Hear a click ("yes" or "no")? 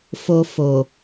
no